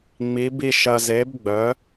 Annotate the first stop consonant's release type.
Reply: plain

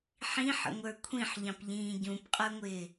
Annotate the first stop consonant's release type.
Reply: aspirated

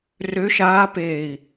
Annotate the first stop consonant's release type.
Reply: plain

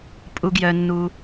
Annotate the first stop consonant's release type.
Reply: ejective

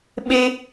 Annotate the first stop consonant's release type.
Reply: implosive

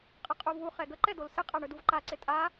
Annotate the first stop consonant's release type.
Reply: ejective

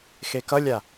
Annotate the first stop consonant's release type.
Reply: plain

